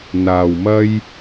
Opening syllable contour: low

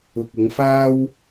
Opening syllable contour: low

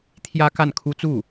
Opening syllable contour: high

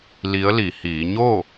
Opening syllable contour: rising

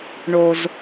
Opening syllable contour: low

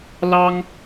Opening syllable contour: high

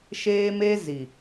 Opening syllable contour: high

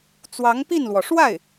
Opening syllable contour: rising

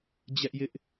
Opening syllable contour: high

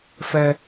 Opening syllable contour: high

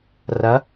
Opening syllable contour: rising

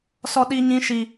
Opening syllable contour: high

